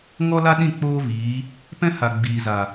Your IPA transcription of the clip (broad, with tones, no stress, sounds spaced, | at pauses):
ŋ ɔ˦ l a˦ ɗ ĩ˦˨ k͡p oː˦ v iː˨˦ | p ɛ̃˦ h a˨ ɡ͡b iː˨ z a˨